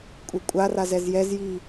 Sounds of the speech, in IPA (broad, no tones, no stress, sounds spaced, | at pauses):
kʷʼ e kʷʼ a r a z ɛ z j ɛ z j i